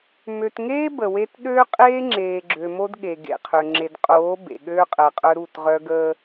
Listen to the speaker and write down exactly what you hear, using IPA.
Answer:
mø˨tŋeː˦ bə˨we˦t ɗøː˦qʼeː˦ŋ͡ǁeː˨ ɡ͡ǁø˨mo˦d ɠe˨ɡḛ˨qʰø˨ ŋ͡ǁe˨dqʼoː˨˦ bḛ˨ ɠøː˦qʼəː˨qʼœ˦ ɾu˦˨tʁœ˦ ɡəː˦

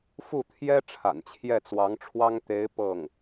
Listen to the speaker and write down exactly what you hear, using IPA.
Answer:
fu˥˩t̪ʰjɛ˥ ʈ͡ʂʰa̰˨˩nt͡ɕʰjɛ˥˩t͡swɑ˧˥ŋʈ͡ʂʰwɑ˥ŋ t̪e˧˥ɪ̯ pɤ˥˩ŋ

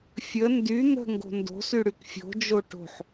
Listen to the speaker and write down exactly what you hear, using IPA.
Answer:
fʲə ndy n̪ə̤ŋɡo̤ ndo̤syɽyk fʲo̤d͡ʒo ʈo̤ħ

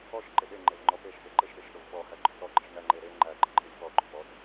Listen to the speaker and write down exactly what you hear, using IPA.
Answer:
ɔʃ ǃɪɗe ŋ͡ǃevŋ͡ǃɔpeʃ peǃɪʃɗeʃɗov ɓɔhæ ɡ͡ǃɔtɔɡ͡ǃɪʃ ŋæŋ͡ǃeɾe ŋ͡ǃæɡ͡ǃɪǃʼɪlʲ pɔɡ͡ǃop ɔt

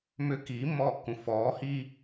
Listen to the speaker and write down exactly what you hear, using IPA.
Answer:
mʏ kiːmːɔːkːũ fɔː hi

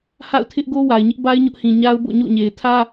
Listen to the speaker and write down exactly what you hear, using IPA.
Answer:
ha̰˦˨ʊ̯tʰɪ˦ʔɡo˦ wa˨ɪ̯ɲɪ˦ʔba˦ɪ̯ ɲʊ˦ʔhĩ˨ ɲa˦ʊ̯bo̰˦˨ɲo̰˦˨ɲe˨ɪ̯ tʰä˦

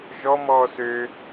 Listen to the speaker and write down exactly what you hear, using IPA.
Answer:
ʒɔ mɔːsø

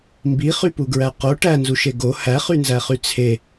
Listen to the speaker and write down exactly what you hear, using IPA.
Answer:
mbiχypuɡɹæ qo ʈænzuʃe ɡo hæχynzæχy t͡sʰe

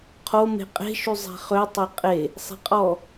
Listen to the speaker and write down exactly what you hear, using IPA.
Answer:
qʰo me̤qʼe̤ ʃyzˤe̤χø tˤeqʼe | sˤe̤qʼɔ

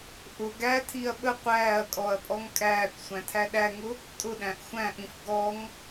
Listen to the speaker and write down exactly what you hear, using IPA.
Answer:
ʔʊɡ ætʰiɐ̯ ɓə qʷæːɐ̯kʼɔɐ̯pʼɔŋ kʼæːkʷsʷæ̃tʰæ ɗæŋʊ | tʼʊɗæ̃ʔ xʷæ̃ʔĩf ɡɔŋ

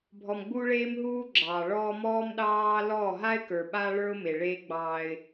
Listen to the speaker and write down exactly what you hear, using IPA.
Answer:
bʱɔ˨mɡ͡bu˦ɭeː˦mɦuː˦ ɡ͡ǁɑː˨ɭɔː˦ mɔː˦mɗɑː˦ lɔ˦˨ɦa˦ɪ̯ kə˞˨ɓa˦ɭə˞˦ʊ̯ me˨ɭeː˦ɡ͡bɑː˦ɪ̯

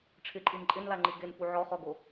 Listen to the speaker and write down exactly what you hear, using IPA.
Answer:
ʈ͡ʂʰɪǃʼin ǃʼɪnlaŋ͡ǃi ɡenfu ʕɔχɔɡo

